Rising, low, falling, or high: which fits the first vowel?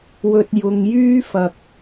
low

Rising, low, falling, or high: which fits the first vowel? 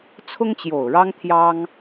high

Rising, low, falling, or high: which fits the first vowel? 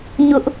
high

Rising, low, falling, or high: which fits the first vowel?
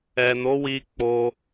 low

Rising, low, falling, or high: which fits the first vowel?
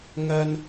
low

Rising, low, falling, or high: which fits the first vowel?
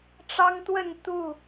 high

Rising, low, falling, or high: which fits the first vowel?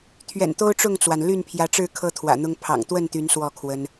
low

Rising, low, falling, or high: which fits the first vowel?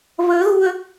rising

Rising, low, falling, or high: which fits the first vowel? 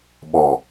low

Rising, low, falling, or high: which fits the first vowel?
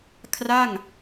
falling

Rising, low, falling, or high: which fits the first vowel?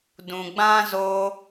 low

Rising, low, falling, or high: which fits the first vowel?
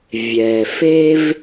low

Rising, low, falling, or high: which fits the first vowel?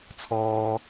high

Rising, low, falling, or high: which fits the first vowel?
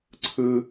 high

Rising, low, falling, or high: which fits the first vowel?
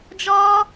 high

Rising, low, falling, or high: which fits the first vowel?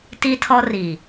high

